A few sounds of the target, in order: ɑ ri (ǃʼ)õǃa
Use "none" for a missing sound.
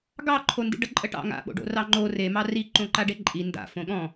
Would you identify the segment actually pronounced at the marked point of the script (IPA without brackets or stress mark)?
ǃ